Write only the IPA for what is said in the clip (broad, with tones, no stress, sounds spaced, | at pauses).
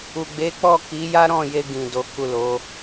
u˨ ɡ͡b e˨˦ k͡p ɔ˦˨ k i˨˦ j a˦ ɾ ɔ̃˦˨ j e˧ ɡ ĩ˨ d o˨˦ k u˦˨ l o˨˦